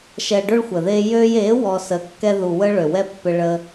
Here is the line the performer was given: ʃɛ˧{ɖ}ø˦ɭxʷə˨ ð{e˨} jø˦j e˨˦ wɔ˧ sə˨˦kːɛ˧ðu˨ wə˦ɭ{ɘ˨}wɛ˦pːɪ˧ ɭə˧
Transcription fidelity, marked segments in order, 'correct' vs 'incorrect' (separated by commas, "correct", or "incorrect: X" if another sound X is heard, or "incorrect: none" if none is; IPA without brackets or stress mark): correct, incorrect: e˧, incorrect: ø˨